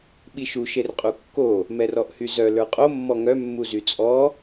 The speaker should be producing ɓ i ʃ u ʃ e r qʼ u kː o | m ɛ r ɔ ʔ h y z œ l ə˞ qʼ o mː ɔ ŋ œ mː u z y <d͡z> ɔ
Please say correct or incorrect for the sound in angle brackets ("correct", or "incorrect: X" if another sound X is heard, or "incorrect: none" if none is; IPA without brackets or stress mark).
incorrect: t͡sʼ